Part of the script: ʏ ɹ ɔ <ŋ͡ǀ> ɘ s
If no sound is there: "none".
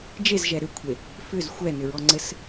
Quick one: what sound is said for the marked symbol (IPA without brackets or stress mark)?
ŋ͡ǀ